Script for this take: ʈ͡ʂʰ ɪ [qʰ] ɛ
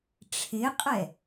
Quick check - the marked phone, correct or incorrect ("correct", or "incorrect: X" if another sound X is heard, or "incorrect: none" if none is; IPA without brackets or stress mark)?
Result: incorrect: qʼ